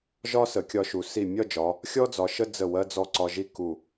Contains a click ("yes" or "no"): yes